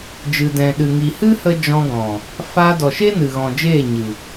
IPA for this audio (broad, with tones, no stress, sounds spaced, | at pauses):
d͡ʒ ɨ˨ d ɛ̃˨ ɗ ɨ˨ ŋ i˨ h ɨ˦ h ə˧ d͡ʒ ɔ̃˧ ɡ ɔ̃˨ | f aː˧ d ɔ˨ ʃ e˦ n ɨ˨ ɣ ɔ̃˨ d͡ʒ eː˦˨ ɲ ɨ˨